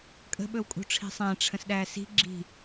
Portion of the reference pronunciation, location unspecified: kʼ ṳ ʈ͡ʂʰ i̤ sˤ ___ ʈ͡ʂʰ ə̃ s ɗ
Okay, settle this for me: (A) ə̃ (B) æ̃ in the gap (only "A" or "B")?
B